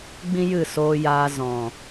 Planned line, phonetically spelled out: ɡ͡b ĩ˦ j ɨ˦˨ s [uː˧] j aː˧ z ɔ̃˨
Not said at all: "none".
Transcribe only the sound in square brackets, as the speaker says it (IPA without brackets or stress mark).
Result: oː˧